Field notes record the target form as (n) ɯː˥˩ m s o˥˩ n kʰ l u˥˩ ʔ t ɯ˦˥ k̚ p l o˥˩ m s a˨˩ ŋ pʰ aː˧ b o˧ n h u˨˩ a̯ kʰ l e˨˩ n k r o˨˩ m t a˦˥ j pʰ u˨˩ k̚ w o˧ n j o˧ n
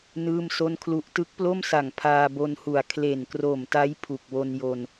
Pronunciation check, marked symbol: correct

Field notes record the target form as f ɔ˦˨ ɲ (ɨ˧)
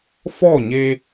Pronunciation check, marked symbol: incorrect: e˧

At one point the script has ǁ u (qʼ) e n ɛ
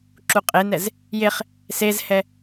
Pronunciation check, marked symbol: correct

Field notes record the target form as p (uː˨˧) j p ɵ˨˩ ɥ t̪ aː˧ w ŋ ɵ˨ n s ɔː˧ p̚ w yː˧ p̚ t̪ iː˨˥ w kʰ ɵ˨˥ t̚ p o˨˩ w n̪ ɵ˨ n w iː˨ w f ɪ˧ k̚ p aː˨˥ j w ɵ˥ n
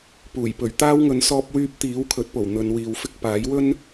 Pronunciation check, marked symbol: incorrect: uː˨˩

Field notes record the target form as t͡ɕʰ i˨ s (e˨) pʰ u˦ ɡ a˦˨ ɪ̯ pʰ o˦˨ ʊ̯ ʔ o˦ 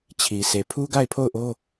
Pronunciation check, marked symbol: correct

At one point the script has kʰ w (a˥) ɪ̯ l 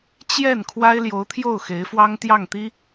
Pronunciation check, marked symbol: correct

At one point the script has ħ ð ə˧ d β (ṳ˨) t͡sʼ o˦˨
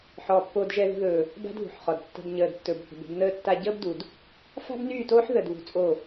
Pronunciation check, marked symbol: incorrect: ṳ˧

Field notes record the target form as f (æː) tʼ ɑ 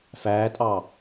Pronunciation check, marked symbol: correct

